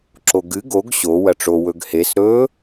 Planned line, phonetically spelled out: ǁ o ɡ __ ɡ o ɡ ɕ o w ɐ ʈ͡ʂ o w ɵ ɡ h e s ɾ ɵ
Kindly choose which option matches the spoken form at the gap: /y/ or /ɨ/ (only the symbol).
ɨ